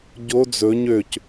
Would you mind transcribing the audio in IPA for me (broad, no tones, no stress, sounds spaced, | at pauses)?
ɟ o d͡z ɵ ɲ ø c